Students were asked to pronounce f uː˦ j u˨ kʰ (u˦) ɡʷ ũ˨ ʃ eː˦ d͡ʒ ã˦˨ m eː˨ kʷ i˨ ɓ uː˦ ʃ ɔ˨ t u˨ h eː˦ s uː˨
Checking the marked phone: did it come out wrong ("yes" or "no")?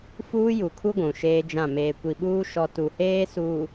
no